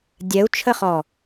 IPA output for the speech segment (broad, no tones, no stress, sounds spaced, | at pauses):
dʲ ɛ u̯ t͡ʃʰ ə χ ɔ